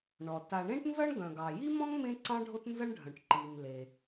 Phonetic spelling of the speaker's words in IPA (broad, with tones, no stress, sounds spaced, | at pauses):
ɳ ɔ˩ t a˩ ɳ ẽ˥ ʈ n z ʌ˥ ɳ ɡ œ̃˩ ɡ ɑ˩ j i˥ m ɔ̃˥ ŋ m ẽ˥ ǀ ɑ̃˥ ɖʱ o˥ t n z ʌ˥ ɳ ɖʱ œ̃˩ ʈ ǃ i˩ m l e˩